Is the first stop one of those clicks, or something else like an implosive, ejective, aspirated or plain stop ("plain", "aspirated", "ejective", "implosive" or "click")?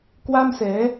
plain